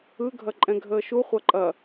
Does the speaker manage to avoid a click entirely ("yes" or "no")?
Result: no